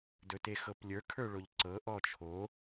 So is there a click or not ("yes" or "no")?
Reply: yes